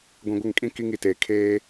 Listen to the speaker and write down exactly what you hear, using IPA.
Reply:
ɡʷ ĩ˨ ɡʷ ɪ˦˨ ŋ kʼ ĩ˦ k i˦ ŋ i˨ t eː˨ kʰ eː˦

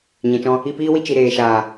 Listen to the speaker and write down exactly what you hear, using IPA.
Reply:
ɲ ɛ̃˨ t͡ʃ ɔ̃˧ | i˧ p iː˦ w i˧ t͡ʃ i˨ ɾ eː˨ ʃ aː˨

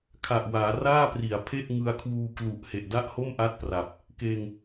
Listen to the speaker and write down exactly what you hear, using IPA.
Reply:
kʰ a˨˩ ʔ w aː˩˦ r aː˥˩ p r i˩˦ a̯ pʰ e˥˩ ʔ ŋ ɯ˧ a̯ kʰ w uː˧ k l u˨˩ ʔ h e˨˩ ʔ d a˥˩ ʔ h o˥˩ m ʔ a˥˩ t̚ p r a˨˩ p̚ | k eː˧ ŋ

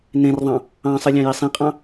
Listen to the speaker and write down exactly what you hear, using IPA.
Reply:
n ẽ r ðˤ ɑ̃ | ɑ̃ sˤ ɨ lʲ ɑ̃ j i sˤ ĩ qʼ ɑ̃

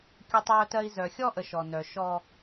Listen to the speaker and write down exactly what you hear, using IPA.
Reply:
kʲ o˦ tˤ j œ˦ t ɜ˦ i̯ z œ˨ xʲ ɔ˦ ʔ ə˨ ʃ ɔ˨ n œ˨ ʃ ɔ˦

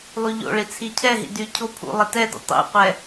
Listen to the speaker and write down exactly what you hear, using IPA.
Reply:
lˠ y ʎ o̰ ɭ i t͡sʰ i cʰ ɛ ɦ ḭ d y cʰ o pʰ ṵ lˠ i t ɛ d ṵ tˤ ḭ qʷ ɛ

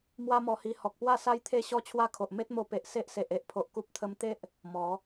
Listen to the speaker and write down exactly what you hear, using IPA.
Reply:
m w a˦ m ɔ˧ h i˧ h ɔ˨ k̚ p w a˥˧ s a˦ j t̪ʰ e˥˧ ɕ ɔ˦ t͡ɕʰ w a˥˧ kʰ o˨ ʔ m e˦ t̚ m o˧ p e˨ ʔ s e˦ ʔ s e˨ ʔ e˨ ʔ pʰ o˨ ʔ k u˦ p̚ t̪ʰ ə˦ m t̪ e˦ ʔ | m ɔ˨˦

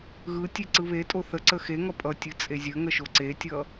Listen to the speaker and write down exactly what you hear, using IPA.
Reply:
ɣ ɯ tʲ e ǀ ɯ β e tʼ o θ ə ǀ ə x e ŋ ʌ pʼ ʌ tʲ ɯ t͡sʼ e zʲ ə ŋ ə ʃ o ǀ e tʲ ʌ

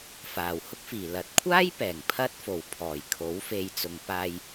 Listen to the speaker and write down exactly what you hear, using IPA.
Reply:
f aː˨˩ w h ʊ˥ k̚ f iː˨˩ l ɐ˨˥ t̚ kʷʰ aː˥ j p ɛː˨˩ ŋ pʰ ɐ˥ t̚ f o˨˩ w pʰ ɔː˨˩ j kʰ o˨˥ w f e˨˧ j t͡s ʊ˨ ŋ p aː˧ j

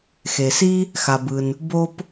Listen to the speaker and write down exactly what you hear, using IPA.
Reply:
x e˩ s i˥ | x a˩ b ɯ˩ n | b o˥ p

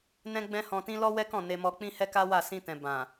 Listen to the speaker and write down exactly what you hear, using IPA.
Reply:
n ɛ̃˦ ɡ͡b ɛ̃˦ h ɔ̃˧ t ĩ˦ l ɔ˦ w ɛ˦ k ɔ̃˦˨ n e˧ m ɔ˧ k͡p ĩ˦ h ɛ˦ k a˦ w a˦˨ s ĩ˧ t ɛ̃˨ b ã˨

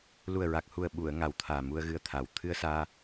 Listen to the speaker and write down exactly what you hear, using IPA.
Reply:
l u˨˩ ə̯ ɹ a˨˩ k̚ h u˨˩ ə̯ ɓ u˨˩˨ ə̯ ŋ a˨˩ w t̪ʰ aː˨˩ m u˧ ə̯ ɣ ɨ˧ ə̯ t̪ʰ a˨˩ w t̪ʰ ɨ˧ ə̯ s aː˧

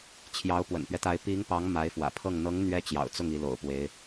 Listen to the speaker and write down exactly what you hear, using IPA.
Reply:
t͡ɕʰ j ɑ˧˥ ʊ̯ p w ə̰˨˩ n p ɥ ɛ˦ t̪ a˧˥ ɪ̯ p i˧˥ ŋ p ɑ˧˥ ŋ m a˧˥ ɪ̯ f w ä̰˨˩ pʰ ɤ˥˩ ŋ n̪ ɤ˧˥ ŋ n̪ ɥ ɛ˧˥ t͡ɕ j ɑ̰˨˩ ʊ̯ t͡s ʊ˥˩ ŋ i˧˥ l o̰˨˩ ʊ̯ p w e˧˥ ɪ̯

